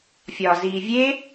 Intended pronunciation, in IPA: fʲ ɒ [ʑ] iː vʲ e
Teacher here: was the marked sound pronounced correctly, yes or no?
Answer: no